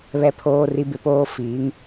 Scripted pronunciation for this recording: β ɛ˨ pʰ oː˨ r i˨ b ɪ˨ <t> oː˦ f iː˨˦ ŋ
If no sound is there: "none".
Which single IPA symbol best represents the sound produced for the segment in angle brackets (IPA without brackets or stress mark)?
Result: p